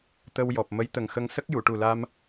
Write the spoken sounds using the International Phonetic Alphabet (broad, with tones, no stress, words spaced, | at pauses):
t̪ə˧wjɔ˨˩p̚ mə˧˥jt̪ə˨˩ŋxə˧ŋ sə˦˥k̚ju˨˩˨ʈu˨˩la˧m